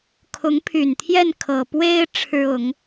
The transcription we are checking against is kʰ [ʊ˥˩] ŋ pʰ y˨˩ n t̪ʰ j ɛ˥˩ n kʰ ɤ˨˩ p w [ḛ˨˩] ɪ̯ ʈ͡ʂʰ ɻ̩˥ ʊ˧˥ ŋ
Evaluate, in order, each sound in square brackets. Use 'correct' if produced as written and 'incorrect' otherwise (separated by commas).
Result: incorrect, incorrect